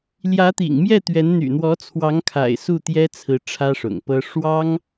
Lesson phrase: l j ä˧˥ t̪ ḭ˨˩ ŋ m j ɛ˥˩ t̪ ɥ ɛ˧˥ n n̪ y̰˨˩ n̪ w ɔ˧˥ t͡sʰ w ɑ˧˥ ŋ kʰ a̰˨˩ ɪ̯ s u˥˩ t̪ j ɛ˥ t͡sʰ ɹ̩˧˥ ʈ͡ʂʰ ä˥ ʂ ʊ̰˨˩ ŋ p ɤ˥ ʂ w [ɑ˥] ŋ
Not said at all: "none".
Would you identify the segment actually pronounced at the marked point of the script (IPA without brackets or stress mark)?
ɑ˥